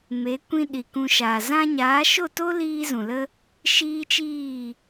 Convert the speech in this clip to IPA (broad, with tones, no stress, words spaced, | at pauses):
me˨˦kʷĩ˧ ɗi˨kũ˧ʃa˨ zã˧ɲaː˨˦ʃo˦˨to˦ liː˦zũ˨lə˦ | ʃiː˦t͡ʃiː˦˨